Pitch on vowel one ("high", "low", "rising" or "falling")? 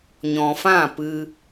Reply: low